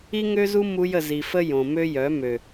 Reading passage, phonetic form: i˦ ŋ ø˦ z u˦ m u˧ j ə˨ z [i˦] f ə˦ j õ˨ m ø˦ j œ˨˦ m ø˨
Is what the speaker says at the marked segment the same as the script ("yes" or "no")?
no